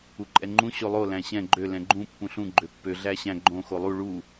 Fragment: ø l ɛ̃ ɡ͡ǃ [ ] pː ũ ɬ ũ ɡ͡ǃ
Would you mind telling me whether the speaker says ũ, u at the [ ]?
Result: ũ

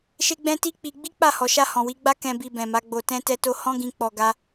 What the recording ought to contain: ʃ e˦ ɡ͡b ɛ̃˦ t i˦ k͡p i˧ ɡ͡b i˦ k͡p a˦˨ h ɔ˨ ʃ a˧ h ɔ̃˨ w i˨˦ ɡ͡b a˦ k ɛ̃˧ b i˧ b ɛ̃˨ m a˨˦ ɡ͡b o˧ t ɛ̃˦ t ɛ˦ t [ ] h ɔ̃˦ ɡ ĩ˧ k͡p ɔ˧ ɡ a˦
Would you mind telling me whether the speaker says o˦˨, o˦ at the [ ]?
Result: o˦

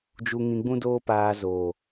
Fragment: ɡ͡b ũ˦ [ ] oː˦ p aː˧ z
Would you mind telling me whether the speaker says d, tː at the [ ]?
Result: d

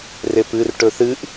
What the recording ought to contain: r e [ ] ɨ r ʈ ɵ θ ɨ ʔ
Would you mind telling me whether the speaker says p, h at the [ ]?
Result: p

